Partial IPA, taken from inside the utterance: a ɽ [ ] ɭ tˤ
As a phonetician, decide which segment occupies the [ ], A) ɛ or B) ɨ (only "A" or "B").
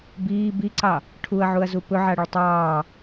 B